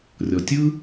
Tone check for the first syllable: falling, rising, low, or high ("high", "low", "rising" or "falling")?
low